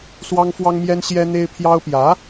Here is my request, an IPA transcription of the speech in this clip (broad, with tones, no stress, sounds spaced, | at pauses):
s w ɑ˥ ŋ f w ɑ˥ ŋ m j ɛ˥ n ɕ j ɛ˥ n̪ e˥ ɪ̯ pʰ j ɑ˥ ʊ̯ p j ä˧˥